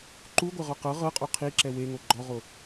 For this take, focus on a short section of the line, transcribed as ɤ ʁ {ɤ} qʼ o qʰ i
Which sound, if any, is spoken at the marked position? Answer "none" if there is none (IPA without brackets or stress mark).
ɤ